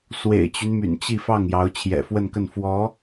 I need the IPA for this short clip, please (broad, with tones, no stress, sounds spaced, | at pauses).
s w ḛ˨˩ ɪ̯ t͡ɕ y˦ n m y̰˨˩ n t͡ɕ i˥˧ f ɑ˥˩ ŋ j ɑ˧˥ ʊ̯ t͡ɕʰ j ɛ̰˨˩ f w ə˥˧ n k ə˥˩ n f w ɔ˧˥